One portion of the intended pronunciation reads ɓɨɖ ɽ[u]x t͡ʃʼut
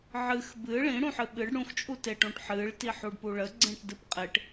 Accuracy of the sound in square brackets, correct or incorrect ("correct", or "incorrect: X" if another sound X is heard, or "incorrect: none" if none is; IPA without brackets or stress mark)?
incorrect: ũ